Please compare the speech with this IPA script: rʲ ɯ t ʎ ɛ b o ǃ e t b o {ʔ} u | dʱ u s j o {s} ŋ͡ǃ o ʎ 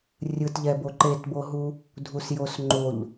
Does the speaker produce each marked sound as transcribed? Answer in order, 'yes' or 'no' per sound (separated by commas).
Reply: no, yes